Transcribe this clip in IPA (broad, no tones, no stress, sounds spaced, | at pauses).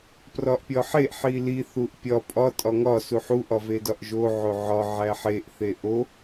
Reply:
p r ɒ ʔ pʲ ɒ ħ e ʔ ħ i l i θ u ʔ pʲ ɒ pʼ ɒ tʼ ɒ ŋ ɒ s u ħ u ʔ ɒ v e d ɒ ʔ ʒ o ʕ o ʕ ɒ ʕ æ ħ e ʔ θ e ʔ o